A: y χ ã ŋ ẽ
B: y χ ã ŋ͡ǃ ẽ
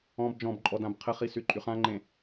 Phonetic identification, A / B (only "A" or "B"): B